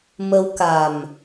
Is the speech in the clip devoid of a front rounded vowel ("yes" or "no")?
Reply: yes